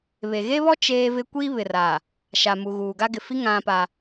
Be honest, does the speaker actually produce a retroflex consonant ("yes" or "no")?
no